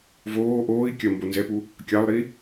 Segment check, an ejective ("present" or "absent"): absent